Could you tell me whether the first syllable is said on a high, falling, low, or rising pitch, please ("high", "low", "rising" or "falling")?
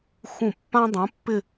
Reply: falling